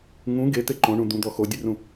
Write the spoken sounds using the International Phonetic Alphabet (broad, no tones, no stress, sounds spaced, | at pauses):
ŋ ũ ɡ e t̪ e ǃ õ ɳ ũ d̪ ũ d̪ ɔ x o dʲ ʉ r ũ